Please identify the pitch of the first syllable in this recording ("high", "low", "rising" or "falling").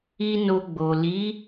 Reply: high